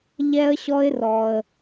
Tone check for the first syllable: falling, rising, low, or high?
high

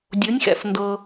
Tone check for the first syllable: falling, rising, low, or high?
rising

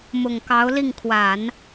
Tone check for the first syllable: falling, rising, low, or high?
low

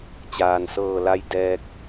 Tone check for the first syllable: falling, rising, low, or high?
low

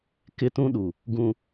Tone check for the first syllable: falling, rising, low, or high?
high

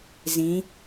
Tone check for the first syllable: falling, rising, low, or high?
rising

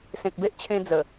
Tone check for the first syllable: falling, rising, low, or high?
low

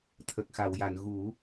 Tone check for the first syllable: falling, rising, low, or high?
low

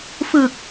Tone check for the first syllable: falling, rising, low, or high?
low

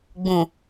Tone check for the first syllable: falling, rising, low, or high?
low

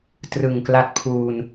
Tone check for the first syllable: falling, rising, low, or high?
low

